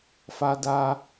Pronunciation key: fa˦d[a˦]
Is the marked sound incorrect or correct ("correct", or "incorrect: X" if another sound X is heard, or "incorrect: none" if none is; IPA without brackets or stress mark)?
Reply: correct